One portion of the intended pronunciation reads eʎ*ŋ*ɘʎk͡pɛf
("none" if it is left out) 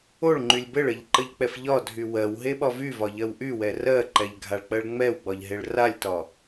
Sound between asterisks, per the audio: ǃ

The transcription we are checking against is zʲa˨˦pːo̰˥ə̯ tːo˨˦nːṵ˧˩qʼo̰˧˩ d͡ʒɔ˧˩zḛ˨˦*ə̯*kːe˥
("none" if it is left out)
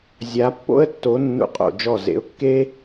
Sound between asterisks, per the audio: ʊ̯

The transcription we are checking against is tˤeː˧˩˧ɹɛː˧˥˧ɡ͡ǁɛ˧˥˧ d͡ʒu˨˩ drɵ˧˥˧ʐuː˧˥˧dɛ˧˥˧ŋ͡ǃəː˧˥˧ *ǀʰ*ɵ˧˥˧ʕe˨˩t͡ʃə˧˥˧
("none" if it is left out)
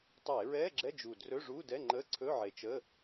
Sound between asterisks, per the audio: ǀʰ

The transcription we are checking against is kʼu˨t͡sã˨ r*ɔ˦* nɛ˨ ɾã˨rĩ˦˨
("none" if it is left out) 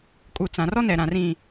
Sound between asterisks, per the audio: ɔ˦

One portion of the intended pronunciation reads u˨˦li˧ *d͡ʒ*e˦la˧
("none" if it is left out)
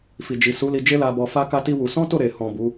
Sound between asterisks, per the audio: d͡ʒ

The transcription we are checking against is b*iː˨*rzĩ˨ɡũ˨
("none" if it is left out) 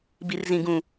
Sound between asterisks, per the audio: i˨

